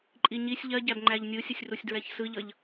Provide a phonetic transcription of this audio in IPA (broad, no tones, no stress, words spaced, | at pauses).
ǃʼiɲisʲ ʎɜɟæb ŋ͡ǃæʎnʲɯsʲəsʲrusʲ dɹɛçsɯʎʌʎ